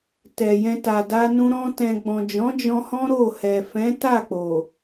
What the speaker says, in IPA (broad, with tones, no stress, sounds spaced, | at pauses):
t ɛ˨ j ɛ̃˧ t a˨ d a˧ n ũ˧ ɾ ɔ̃˧ t ɛ̃˨ ɡ͡b ɔ̃˨ d͡ʒ ɔ̃˨˦ d͡ʒ ɔ̃˧ h ɔ̃˦ ɾ o˦˨ h ɛ˨ f ɛ̃˨˦ t a˦˨ k͡p o˨